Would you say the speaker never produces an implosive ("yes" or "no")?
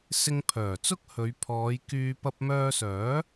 yes